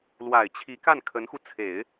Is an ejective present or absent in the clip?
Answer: absent